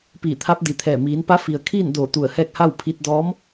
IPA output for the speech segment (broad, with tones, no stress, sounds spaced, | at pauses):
p iː˧˩ t̪ʰ a˧˥ p̚ d i˩ t̪ʰ ɛː˧˩ m iː˩˧ n p a˧˥ f i˩ ə̯ kʰ iː˥˨ n d oː˧˩ t̪ u˧˩ ə̯ h ɛː˥˨ k̚ h a˥˨ w pʰ i˧ t̚ d ɔː˧˥ m